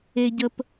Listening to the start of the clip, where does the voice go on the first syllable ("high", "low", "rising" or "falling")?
low